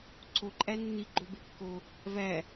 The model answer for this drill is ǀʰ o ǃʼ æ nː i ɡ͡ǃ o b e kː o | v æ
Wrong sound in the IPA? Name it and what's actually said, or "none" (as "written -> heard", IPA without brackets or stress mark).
none